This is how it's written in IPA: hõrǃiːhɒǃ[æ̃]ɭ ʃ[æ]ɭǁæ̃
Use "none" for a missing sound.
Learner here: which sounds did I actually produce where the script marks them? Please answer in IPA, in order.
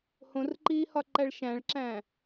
æ, æ̃

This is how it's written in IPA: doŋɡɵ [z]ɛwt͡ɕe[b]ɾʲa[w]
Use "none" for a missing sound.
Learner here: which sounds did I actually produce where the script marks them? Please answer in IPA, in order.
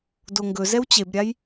z, b, j

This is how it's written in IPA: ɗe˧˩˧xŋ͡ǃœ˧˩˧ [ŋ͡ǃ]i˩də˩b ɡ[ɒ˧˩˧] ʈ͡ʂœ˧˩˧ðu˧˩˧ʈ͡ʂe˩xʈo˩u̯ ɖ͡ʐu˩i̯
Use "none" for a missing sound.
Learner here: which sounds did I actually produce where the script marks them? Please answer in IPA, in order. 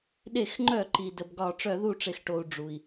ǃ, ɒ˧˩˧

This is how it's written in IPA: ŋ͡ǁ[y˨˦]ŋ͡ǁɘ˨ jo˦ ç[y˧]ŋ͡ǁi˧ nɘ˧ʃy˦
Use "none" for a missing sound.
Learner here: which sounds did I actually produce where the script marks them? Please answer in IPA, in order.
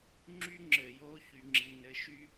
y˦, y˧

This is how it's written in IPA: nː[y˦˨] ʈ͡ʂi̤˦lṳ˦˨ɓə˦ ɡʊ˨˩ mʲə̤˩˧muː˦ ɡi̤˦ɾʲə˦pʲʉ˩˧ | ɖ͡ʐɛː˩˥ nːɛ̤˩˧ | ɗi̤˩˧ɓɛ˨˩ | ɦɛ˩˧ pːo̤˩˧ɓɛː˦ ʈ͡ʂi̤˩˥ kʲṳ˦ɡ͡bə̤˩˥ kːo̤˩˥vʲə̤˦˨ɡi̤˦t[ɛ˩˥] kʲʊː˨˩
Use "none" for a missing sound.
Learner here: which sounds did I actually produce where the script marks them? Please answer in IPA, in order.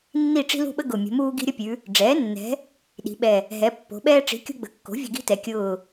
i˦˨, ɛ˩˧

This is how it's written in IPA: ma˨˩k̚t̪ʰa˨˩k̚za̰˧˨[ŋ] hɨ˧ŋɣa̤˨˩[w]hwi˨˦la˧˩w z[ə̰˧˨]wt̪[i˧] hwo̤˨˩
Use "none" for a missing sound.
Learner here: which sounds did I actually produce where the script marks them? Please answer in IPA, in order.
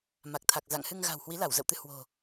ŋ, w, ə̰˧˨, ɨ˧

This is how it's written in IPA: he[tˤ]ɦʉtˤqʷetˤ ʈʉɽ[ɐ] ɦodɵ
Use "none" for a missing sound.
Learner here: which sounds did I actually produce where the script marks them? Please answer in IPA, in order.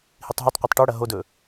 tˤ, ɐ

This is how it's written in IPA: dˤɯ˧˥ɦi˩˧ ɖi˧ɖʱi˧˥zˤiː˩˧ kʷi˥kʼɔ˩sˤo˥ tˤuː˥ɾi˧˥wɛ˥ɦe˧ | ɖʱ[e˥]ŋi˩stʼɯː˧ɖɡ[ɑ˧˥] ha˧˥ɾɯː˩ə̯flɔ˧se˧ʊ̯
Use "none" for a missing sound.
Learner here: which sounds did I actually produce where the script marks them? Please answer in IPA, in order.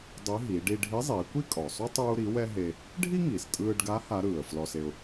i˥, a˧˥

